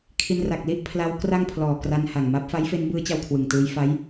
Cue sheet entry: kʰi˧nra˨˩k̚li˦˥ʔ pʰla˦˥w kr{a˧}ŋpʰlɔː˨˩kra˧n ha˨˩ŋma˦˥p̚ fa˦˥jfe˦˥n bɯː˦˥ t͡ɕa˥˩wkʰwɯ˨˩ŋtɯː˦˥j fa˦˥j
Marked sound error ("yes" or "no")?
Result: yes